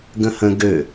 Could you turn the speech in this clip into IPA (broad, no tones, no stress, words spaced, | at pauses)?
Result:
ɡə̃hə̃ ɡø